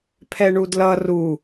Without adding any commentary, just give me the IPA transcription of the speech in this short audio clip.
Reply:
pʰ ɛ ɳ u d l ʌ r u

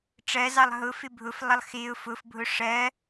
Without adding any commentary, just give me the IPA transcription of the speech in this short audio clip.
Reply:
ʈ͡ʂ ɜ z ɑ lˠ ɦ ʊ f ɪ bʱ ʊ f lˠ ʌ lˠ x ɪ ʊ̯ f ʊ f bʱ ʊ ʂ ɜ

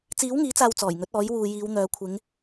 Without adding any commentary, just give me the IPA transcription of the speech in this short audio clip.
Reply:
t͡s iː˨˥ w ŋ iː˨˥ t͡s aː˨ w t͡s ɔː˨˩ j ŋ ɵ˨˥ t̚ ɔː˨˥ j w uː˨ j iː˨˧ w n̪ œː˨˧ kʷʰ ɪ˨˧ ŋ

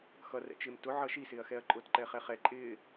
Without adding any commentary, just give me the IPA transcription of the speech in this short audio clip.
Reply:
x ʌ r ɛ̰ t͡ʃ ɪː m t ʊ ʕ ʌː ʃ i s ɪː ɐ̯ x ɛ ɐ̯ ǃʼ ʊː t ǃ ɛ χ ɛ χ ɛ ǃʼ ɪː

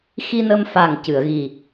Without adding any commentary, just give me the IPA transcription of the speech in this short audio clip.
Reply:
x i˧ n ə˧ m f a˨˩ ŋ c ɨ˨˩˨ ə̯ ɣ i˨˩

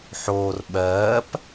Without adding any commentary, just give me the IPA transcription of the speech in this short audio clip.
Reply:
ħ oː r ɓ ɜː p

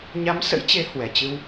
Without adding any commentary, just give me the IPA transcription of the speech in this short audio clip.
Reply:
ɲ a˨˦ m s ə̰˧˥ j t͡ɕ e˨˦ h w ɛ˨˩ t͡ɕ ɨ˧ w

